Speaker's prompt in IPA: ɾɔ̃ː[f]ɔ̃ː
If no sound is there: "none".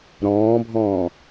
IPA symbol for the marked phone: bʱ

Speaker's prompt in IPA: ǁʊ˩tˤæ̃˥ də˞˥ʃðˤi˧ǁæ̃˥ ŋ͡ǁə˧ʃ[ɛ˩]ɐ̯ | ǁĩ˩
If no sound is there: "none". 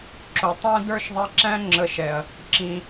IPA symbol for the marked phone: ɛ˩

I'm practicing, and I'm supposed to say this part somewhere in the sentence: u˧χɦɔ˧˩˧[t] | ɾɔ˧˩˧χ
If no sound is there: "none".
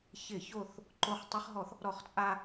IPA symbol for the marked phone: θ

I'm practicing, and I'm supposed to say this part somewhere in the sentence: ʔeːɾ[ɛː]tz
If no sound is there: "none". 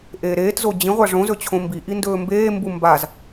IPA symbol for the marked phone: eː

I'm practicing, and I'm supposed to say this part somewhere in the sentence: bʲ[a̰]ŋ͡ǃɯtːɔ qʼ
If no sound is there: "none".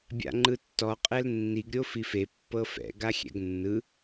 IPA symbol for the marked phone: a̰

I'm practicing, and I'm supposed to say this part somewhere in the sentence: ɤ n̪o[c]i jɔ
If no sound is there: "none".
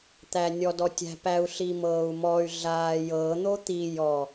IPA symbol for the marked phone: t̪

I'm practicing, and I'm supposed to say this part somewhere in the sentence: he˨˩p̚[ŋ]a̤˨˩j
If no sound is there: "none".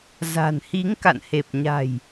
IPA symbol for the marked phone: ɲ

